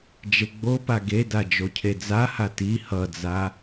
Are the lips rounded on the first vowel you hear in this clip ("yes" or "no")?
no